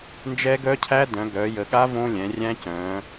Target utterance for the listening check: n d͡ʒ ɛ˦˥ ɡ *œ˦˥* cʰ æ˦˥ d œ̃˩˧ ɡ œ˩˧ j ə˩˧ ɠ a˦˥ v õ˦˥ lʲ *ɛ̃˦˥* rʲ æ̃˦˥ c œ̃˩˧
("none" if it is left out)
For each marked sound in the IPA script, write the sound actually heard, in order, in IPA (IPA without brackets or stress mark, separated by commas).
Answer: œ˦˥, ɛ̃˩˧